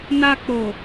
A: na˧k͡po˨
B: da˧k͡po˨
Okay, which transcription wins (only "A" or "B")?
A